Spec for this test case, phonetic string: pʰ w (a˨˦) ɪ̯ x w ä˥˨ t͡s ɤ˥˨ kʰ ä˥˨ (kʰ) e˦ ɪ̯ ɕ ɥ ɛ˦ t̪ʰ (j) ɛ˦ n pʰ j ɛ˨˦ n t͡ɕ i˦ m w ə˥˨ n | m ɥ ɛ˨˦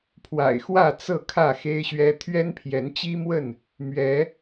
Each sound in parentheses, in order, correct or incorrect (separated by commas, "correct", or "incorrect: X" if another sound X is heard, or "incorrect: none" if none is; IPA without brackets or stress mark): incorrect: a̰˨˩, incorrect: x, incorrect: ɥ